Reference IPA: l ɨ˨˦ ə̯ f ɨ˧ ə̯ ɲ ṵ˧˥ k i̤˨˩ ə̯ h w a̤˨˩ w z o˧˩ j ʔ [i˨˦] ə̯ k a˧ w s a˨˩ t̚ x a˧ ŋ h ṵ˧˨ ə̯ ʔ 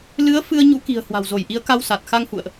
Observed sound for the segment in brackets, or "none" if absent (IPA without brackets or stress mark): i˨˦